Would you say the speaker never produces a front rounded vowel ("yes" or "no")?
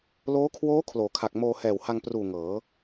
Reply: yes